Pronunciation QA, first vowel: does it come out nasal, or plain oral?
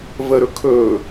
oral